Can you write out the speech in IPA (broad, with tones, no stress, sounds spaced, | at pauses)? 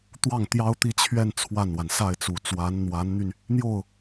t̪ w ɑ˥˩ ŋ t̪ j ɑ˥ ʊ̯ t̪ i˥˧ t͡ɕʰ ɥ ɛ˥˧ n t͡sʰ w a˥˩ n w a˩ n s a˥˩ ɪ̯ t͡s u˨˩ t͡s w a˧˥ n n̪ w a˧˥ n n̪ y˧ n | n̪ j o˥˩ ʊ̯